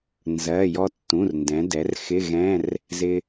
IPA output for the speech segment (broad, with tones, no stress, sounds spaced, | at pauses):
n z ɜ˩˧˩ j ɔ˧ tː ũ˩˧˩ r n d ɛ̃˩˧ d ɛ˩˧ r x ɪ˧˥˧ ɣ ɛ̃˧˥˧ r | z ɪ˧